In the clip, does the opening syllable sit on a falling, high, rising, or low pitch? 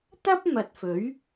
high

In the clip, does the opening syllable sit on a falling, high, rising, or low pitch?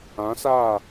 rising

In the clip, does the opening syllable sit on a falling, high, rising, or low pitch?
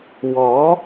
rising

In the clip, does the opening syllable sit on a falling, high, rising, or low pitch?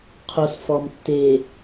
low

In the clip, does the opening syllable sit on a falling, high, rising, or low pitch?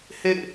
falling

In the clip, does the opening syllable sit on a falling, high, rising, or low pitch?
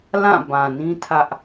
falling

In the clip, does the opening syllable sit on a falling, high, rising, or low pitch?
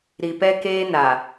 low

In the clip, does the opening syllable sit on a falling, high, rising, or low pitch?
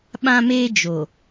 high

